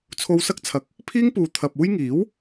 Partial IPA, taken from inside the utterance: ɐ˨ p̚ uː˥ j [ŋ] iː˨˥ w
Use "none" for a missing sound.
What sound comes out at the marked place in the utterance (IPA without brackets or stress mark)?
ŋ